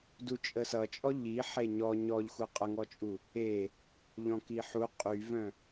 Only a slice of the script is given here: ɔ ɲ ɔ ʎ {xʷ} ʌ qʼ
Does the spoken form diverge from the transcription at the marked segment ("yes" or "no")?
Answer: no